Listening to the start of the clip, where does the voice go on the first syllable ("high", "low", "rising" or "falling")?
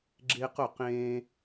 high